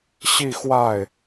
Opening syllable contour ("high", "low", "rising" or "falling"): falling